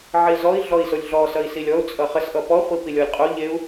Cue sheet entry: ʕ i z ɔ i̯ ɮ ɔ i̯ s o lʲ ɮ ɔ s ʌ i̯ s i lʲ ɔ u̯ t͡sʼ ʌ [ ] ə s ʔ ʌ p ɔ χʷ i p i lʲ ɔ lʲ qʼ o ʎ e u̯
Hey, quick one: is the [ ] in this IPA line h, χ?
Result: χ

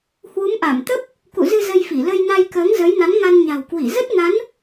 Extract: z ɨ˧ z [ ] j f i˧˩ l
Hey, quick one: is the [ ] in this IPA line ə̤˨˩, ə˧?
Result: ə˧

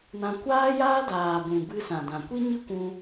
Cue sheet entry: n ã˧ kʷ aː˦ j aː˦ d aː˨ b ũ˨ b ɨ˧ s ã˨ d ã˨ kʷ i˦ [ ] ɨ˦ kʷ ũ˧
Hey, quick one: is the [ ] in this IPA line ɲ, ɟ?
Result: ɲ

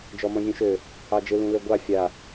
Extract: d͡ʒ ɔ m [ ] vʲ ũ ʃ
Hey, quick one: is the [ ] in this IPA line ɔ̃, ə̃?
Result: ɔ̃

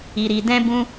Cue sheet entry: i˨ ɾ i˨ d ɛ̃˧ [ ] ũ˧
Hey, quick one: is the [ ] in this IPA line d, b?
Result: b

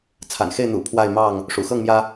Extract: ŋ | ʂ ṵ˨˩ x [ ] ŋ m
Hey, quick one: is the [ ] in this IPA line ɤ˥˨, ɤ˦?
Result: ɤ˥˨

